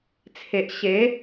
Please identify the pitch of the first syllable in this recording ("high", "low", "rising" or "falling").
low